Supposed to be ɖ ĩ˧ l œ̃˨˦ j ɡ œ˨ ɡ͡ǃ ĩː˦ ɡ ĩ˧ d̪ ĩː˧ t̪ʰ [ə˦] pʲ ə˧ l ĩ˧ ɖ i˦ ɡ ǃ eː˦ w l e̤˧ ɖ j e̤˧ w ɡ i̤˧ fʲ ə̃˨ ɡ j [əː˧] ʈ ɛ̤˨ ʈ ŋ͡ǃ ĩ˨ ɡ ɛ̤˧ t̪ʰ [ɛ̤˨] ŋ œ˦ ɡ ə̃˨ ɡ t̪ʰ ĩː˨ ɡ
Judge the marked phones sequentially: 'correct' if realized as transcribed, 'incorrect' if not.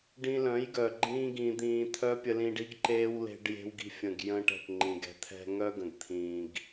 incorrect: œ˦, incorrect: ə̃ː˧, incorrect: ɛ̤˧

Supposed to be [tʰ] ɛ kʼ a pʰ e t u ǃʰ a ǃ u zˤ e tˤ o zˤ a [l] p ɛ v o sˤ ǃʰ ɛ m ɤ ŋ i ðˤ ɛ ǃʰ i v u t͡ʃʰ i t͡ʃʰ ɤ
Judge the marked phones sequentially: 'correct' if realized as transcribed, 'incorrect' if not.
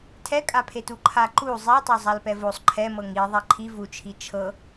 correct, correct

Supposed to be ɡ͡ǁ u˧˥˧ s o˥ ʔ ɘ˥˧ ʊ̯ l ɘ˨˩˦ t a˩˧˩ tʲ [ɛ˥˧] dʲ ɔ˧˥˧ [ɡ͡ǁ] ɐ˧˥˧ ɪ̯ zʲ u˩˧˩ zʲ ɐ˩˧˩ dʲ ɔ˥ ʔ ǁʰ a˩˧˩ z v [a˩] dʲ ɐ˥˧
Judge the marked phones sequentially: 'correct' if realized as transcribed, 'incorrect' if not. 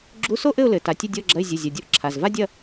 incorrect: ɘ˥˧, correct, incorrect: a˥

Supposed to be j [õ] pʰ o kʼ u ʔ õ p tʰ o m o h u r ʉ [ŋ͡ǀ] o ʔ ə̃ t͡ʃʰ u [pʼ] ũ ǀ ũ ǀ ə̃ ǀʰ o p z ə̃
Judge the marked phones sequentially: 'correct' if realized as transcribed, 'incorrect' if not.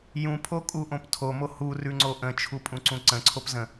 incorrect: ũ, correct, correct

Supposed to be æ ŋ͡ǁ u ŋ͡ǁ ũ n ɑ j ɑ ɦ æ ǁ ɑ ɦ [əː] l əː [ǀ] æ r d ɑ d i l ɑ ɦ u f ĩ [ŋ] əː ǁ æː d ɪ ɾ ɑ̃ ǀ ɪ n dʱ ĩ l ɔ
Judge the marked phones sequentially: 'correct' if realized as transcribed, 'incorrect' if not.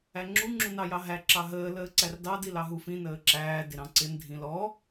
correct, correct, incorrect: n

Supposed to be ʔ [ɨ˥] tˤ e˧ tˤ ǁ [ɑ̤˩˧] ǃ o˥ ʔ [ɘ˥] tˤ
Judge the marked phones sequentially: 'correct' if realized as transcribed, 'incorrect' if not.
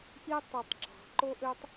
incorrect: i˥, correct, incorrect: ø˥

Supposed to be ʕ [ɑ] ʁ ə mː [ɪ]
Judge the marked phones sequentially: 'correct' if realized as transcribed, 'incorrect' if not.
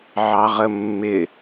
correct, correct

